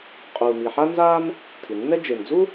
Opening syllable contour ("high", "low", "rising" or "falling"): low